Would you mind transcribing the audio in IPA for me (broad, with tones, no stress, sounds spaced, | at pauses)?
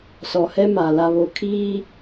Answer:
s ɔ˨ h ɛ˦ m a˨ l a˨ β o˨ kʰ iː˦